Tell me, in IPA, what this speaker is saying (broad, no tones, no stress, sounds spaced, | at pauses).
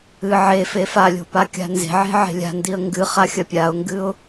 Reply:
ɨ ʕ e f e f a lʲ o̤ p a kʲ a̤ n z e̤ ʕ e̤ ʕ e̤ lʲ a̤ n d i ə̯ ŋ ɡ ɨ χ a xʲ ɐ pʲ a ʊ̯ ŋ ɡ ɨ ʊ̯